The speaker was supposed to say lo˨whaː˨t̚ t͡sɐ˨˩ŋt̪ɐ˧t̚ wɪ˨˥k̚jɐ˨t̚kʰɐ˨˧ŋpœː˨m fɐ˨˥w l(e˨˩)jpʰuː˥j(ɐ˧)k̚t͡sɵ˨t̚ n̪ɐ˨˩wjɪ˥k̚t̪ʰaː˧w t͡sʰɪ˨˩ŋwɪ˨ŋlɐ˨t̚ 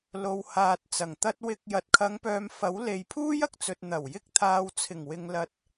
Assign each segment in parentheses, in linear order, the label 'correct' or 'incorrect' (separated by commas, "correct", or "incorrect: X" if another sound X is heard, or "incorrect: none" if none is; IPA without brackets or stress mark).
incorrect: e˨, incorrect: ɐ˨